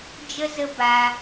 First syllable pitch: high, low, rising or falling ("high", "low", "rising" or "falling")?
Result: high